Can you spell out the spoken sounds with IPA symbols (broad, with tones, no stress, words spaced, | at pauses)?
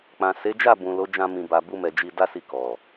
k͡pã˨se˨˦d͡ʒa˦˨ bũ˨ lo˨˦d͡ʒã˧ mĩ˨ ba˨bu˧mɛ˨ d͡ʒi˧da˦si˧ kɔ˨